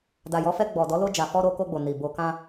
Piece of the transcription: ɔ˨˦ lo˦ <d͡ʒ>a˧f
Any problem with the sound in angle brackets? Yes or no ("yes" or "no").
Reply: no